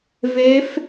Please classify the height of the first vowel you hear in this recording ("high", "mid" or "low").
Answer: mid